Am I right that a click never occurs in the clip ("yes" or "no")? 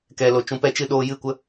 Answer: yes